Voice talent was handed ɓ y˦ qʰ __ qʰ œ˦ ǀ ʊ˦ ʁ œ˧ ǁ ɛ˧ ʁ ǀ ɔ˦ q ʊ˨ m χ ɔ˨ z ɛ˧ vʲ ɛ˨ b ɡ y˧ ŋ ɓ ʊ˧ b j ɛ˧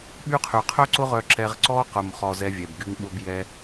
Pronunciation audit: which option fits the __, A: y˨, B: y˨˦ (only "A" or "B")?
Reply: A